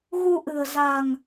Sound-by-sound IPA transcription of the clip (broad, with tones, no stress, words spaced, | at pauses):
ɣu˧ʔɨ̤˨˩ə̯za̤˨˩ŋ